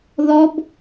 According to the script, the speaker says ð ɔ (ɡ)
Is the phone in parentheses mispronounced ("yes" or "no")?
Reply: yes